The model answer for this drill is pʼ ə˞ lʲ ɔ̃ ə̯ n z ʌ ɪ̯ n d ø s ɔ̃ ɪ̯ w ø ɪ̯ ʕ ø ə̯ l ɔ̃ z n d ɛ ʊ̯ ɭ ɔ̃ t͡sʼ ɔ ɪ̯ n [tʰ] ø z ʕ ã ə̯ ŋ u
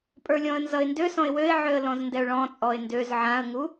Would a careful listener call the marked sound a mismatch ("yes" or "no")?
yes